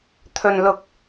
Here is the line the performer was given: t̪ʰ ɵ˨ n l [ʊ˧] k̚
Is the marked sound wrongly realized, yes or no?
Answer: yes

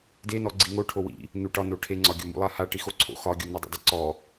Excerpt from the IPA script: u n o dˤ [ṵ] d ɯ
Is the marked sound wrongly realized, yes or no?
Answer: yes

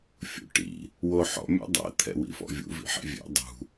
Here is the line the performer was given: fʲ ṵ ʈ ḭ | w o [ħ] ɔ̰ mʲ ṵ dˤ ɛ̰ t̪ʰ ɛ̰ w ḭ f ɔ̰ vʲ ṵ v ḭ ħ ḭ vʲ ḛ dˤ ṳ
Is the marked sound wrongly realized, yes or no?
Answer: no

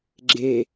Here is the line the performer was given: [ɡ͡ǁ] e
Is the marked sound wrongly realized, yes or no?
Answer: no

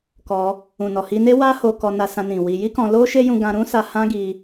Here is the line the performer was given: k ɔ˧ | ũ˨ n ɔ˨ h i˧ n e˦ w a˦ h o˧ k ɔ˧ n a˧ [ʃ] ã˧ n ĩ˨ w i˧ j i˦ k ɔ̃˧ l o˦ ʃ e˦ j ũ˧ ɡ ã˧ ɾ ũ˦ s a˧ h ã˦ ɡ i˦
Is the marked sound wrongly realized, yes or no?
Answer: yes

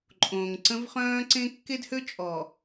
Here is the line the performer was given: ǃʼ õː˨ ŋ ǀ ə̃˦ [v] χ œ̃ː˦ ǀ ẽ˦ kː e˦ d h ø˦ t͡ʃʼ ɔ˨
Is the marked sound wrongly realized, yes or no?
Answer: no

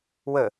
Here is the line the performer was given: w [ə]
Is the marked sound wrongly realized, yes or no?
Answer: no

